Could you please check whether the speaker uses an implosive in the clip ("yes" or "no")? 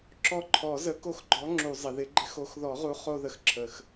no